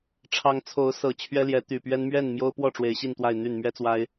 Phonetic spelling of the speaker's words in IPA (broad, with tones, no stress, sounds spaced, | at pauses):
ʈ͡ʂʰ ɑ˦ ŋ t͡sʰ o˨˦ ʊ̯ s ɤ˨˩ t͡ɕʰ ɥ ɛ˦ l j ɛ˨˦ t̪ y˨˩ p ɥ ɛ˦ n m ɥ ɛ˥˨ n m j o˦ ʊ̯ p w ɔ˥˨ ʈ͡ʂ w e˨˦ ɪ̯ ɕ i˥˨ n t̪ w a˥˨ ɪ̯ n̪ y˥˨ n m ɥ ɛ˦ t͡s w a˦ ɪ̯